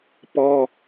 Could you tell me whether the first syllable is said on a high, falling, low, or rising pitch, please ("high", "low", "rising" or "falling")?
high